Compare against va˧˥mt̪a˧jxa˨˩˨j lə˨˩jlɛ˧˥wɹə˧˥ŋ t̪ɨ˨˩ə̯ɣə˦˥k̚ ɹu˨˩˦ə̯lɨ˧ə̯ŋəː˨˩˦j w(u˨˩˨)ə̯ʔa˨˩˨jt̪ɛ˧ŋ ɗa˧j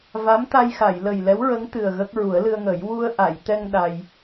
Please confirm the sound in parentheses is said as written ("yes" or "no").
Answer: no